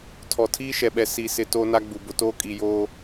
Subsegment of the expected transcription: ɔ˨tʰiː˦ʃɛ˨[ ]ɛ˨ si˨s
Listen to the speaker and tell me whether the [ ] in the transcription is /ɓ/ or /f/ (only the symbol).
ɓ